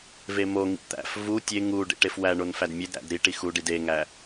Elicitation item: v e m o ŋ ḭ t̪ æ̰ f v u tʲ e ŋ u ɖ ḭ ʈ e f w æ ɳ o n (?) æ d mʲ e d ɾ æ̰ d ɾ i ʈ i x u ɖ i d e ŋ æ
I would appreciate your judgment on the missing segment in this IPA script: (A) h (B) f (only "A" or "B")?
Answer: B